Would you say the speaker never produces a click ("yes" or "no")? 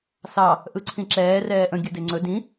no